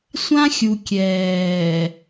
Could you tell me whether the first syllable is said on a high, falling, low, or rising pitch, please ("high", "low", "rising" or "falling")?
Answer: high